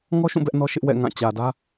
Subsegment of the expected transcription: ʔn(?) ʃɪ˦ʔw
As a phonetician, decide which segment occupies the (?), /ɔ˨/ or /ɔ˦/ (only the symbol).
ɔ˦